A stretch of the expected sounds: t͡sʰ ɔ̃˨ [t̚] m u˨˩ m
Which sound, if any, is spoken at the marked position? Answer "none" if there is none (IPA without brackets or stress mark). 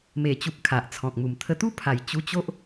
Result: k̚